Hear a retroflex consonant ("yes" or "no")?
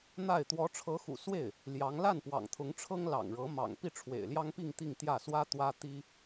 yes